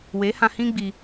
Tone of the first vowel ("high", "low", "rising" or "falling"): rising